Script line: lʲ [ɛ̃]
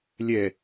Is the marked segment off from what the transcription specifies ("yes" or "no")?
yes